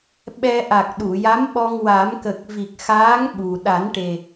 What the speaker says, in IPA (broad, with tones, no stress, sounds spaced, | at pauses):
ɓ ɛ˧ ʔ a˨˩ k̚ ɗ u˨˩˨ j a˧˥ m ɓ ɔ˧ ŋ w a˨˩˦ m k ə˨˩ k̚ v i˨˩ k̚ x aː˧˥ ŋ ɓ u˨˩ ɗ a˨˩˦ n ʈ e˨˩